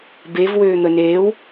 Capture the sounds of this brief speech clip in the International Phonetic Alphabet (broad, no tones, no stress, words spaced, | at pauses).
bevwøː n̪əneːw